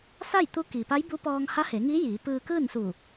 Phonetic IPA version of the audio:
s a˥˨ j t̪ u˧˥ k iː˩ p a˧˥ j b uː˧˥ p ɔː˧ ŋ h a˧˥ h e˩˧ ŋ i˧˥ j iː˩˧ p ɯː˧ k ɯː˥˨ n s u˧˩

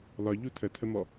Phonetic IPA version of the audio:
l ɒ ʎ u tʰ ə tʰ ə m ɔ

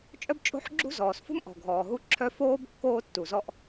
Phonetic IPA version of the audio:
t͡ʃʼ œ˥ b t͡ʃʼ o̤˥ ħ ɡ͡ǁ ṳ˥ z ɔː˩ s f ṳ˥ m ʔ ɔ̤˩ ɡʱ ɔː˩ ɦ u˥ ǁʰ œ˥ f oː˥ b kː oː˥ tː u˩ z ɔ˥ ʔ

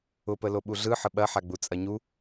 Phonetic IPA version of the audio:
ʊ p ə l o ɓ u ɮ ɯ ħ ə ɓ ɐ ħ a ɡ͡b u t͡sʼ ɐ ɲ u

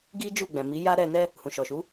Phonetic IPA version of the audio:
ɡ i˦ d͡ʒ u˦˨ ɡ͡b ɛ̃˨ m i˨˦ j a˦ ɾ ɛ˧ n ɛ˦ | h ũ˨ ʃ ɔ˨ ʃ u˨˦

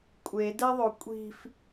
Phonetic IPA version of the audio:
kʷʼ e d ɛ ðˤ o kʷʼ i̤ f

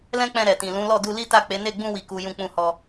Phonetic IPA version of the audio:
l ɛ̃˦ k͡p ɛ̃˧ ɾ ɛ˨ t ĩ˨ l ũ˨˦ l ɔ˦˨ d u˧ l i˦ t a˦˨ k͡p e˨˦ n e˦˨ ɡ͡b ũ˧ w i˨ k u˨ j ũ˧ k͡p ũ˧ h ɔ˧

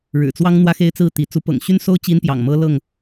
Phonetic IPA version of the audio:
ɻ ɻ̩˨˩ t͡s w ɑ˦ ŋ n̪ w ä˦ x e˦ ɪ̯ t͡s ɹ̩˥˨ t̪ i˨˦ t͡s u˨˦ p ɤ̰˨˩ ŋ ɕ y˦ n s o˦ ʊ̯ t͡ɕ i˦ n p j ɑ̰˨˩ ŋ m ɤ˦ l ɤ˥˨ ŋ

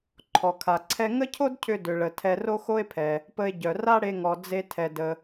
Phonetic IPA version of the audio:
ǃʰ ɔ˩ kʰ a˩ ǀʰ ɛ˧ ŋ ə˥ cʰ o˥ d cʰ ʏ˧ d ʏ˩ ɭ ə˩ tʰ ɛ˧ r o˥ x o˥ e̯ pʰ ɛ˩ | p ə˧ e̯ ɟ œ˩ r a˥ ɽ e˧ ŋ ɔ˩ d͡z e˧ tʰ ɛ˩ d ə˩

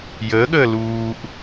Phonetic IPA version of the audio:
j əː ɠ əː l uː ʔ

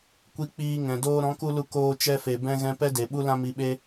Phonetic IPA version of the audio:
kʷ i˦ k͡p iː˧ ŋ ɛ̃˨ d oː˧ ɾ ɔ̃˨˦ k u˧ l u˧ k oː˧ t͡ʃ ɛ˧ f e˨ b ɛ̃˦ ɣ ɛ̃˦ p ɛ˦ d e˨ ɓ u˦ l ã˦ m i˧ ɓ e˦

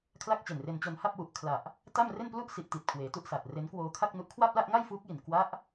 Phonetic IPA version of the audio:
kʰ l a˥˩ k̚ t͡ɕ e˨˩ n r e˧ n t͡ɕ o˧ n h a˥˩ p̚ w u˨˩ ʔ kʰ l a˨˩ ʔ | t a˥˩ m r e˥˩ n p l u˥˩ ʔ s i˦˥ ʔ t i˨˩ t̚ kʰ w eː˩˦ t u˥˩ ʔ s a˨˩ t̚ r e˦˥ n k w oː˧ kʰ a˥˩ k̚ n u˦˥ ʔ kʰ w a˥˩ p̚ l a˥˩ ʔ ŋ a˥˩ j f uː˦˥ k̚ j i˨˩ n k w a˦˥ ʔ

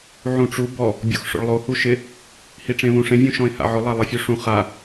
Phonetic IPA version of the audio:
ʕ ũ ʈ͡ʂ u b ɔ | bʲ o̰ x ʂ o̰ ɭ lˠ o h u ʃ ɪ | h i ʈ͡ʂ ẽ β ũ ʂ ẽ vʲ ũ ʃ ɔ̃ ɪ̯ h a̰ ʕ ʊ lˠ a lˠ e fʲ u ʂ ũ χ a

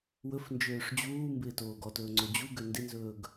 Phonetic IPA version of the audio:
w ɵ f n d͡ʒ øː ʂ d͡ʑ uː m b ɪː t oː ɡ ɔ t ɵː ŋ͡ǀ o d͡ʑ u ɡ ø n d ɪ n z ɵː ɡ

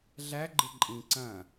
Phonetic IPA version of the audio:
ɮ æ ɡ͡ǃ ɪ ǃʼ ĩ ǀ ɐ̃

